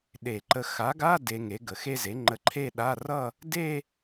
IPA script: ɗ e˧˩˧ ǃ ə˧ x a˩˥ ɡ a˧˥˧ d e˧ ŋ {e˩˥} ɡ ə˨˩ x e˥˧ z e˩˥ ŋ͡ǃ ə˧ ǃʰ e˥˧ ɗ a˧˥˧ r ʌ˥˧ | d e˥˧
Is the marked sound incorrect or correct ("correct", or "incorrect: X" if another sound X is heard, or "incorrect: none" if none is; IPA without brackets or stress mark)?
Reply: correct